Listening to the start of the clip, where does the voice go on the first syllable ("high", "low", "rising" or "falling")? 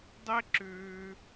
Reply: high